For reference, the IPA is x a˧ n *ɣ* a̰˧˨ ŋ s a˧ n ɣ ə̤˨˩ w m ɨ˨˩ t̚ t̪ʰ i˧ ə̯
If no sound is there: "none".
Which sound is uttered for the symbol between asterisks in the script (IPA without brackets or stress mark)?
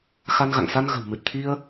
ɣ